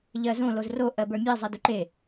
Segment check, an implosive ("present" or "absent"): absent